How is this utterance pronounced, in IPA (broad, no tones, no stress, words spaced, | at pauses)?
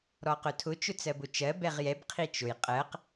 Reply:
ɾɔqʊtʰʊ t͡ʃʊt͡sɜbʊt͡ʃɜ bɛʁjɛb qʰit͡ʃʊj qʼɜq